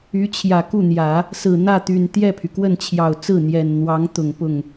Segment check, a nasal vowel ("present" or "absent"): absent